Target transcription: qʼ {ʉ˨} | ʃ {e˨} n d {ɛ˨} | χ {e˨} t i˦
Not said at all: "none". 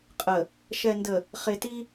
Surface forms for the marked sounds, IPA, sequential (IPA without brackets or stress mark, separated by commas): ə˨, ɛ˨, ə˨, e˨